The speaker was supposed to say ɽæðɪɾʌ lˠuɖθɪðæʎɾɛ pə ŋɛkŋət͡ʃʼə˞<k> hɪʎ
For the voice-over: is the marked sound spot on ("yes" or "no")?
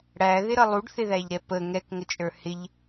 no